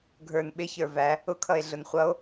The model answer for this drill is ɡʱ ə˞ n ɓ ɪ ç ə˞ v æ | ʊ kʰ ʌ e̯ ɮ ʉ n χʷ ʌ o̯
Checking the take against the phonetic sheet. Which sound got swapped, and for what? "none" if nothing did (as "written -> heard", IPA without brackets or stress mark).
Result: ʉ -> ʊ